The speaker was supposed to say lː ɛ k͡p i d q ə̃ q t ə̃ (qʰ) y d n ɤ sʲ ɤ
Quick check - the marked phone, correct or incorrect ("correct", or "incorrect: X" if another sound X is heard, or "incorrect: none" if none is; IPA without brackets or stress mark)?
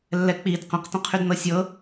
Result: correct